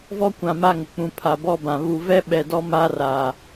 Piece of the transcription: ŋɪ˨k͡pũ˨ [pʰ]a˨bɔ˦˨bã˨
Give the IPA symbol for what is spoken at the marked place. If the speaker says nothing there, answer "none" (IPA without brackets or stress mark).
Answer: pʰ